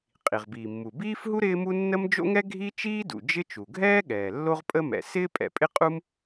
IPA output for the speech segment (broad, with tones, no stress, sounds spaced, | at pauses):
qʼ i˩ ʁ b iː˩ mː u˩ b iː˥ f ɦ u˥ ɾ ɪː˥ m u˥ nː ə˥ m d͡ʒ o̰˥ ŋ ɛ˥ ɡʱ i˥ t͡ʃ iː˥ d ṵ˩ d͡ʒ ɪ˥ t͡ʃ u˩ ɡʱ ɛː˥ ɠ ɛː˩ lː o˥ ʁ pʼ ə˥ m ɛ̰˩ s ɪː˥ pʼ ɛ̰˩ pʼ ɪ˥ qʼ u˥ m